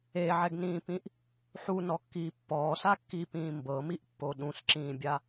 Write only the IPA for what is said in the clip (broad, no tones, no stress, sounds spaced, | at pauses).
e ʕ ɛ ɡ n ĩː p ĩ ʔ | ħ u n ɔ kː iː pː ɔː s a kː iː p ĩː m b ɤ m i ʔ pː o ɗ ũ s ǁ ĩː bʲ a